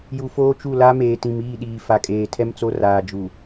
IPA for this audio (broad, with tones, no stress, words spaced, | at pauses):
ju˨foː˦t͡ʃu˦˨ la˦meː˨tĩ˨m iː˦˨ɗiː˨fa˨kʼeː˨ tʰɛ˦mt͡so˦raː˨ d͡ʒu˨